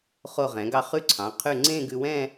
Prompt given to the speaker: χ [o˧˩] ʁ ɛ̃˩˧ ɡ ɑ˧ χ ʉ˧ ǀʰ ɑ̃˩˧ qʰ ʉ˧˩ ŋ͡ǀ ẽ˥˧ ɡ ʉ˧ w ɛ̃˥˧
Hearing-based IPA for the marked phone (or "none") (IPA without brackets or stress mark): o˧˩